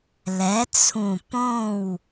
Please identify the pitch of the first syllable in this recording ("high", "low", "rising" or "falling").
rising